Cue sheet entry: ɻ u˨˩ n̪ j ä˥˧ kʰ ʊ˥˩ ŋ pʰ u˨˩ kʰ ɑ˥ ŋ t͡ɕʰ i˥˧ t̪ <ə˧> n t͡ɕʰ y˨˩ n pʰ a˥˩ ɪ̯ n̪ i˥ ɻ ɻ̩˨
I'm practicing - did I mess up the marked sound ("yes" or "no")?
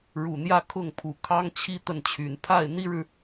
yes